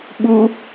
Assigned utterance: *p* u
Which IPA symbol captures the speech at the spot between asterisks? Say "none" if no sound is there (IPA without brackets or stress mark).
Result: ɓ